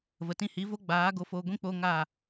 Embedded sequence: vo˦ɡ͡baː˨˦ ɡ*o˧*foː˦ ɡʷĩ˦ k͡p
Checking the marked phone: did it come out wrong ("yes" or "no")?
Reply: yes